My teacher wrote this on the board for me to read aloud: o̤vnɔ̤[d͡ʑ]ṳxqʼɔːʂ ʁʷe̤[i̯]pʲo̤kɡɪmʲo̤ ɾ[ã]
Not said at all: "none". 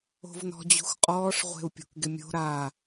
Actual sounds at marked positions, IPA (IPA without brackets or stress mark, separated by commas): d͡ʑ, u̯, a